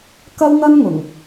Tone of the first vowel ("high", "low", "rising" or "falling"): high